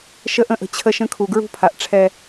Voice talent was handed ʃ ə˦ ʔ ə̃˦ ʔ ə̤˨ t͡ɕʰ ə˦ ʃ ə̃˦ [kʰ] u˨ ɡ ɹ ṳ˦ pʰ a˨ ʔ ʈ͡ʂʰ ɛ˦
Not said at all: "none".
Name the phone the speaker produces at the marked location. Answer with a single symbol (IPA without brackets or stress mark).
kʰ